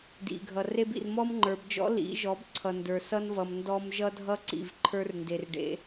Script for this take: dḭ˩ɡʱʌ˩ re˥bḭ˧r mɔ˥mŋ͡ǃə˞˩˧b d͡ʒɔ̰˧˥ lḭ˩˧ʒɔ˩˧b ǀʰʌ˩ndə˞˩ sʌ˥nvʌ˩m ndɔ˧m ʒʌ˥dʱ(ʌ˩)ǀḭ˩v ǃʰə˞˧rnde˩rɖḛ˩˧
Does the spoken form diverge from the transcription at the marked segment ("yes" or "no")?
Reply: yes